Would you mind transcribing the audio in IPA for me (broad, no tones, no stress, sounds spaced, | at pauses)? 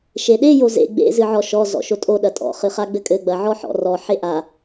ʃ e ɗ e j o z ḛ ɡ͡b ḛ z ɨ ʕ ɔ ʃ ɔ z ɔ̰ ʃ o tʼ o ɗ ɐ tʼ ɔ̰ χ ɨ χ a ɡ͡b ɘ kʼ ɘ ɡ͡b ɐ ʕ ɔ ħ ɔ̰ r ɔ ħ e ʔ a